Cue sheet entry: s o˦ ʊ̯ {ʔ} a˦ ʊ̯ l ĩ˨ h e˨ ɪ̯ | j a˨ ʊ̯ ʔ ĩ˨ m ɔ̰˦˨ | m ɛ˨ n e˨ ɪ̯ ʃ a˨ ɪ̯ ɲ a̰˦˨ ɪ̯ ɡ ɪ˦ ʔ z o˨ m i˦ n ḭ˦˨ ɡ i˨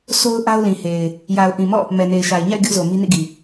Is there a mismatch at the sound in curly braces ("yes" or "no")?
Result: no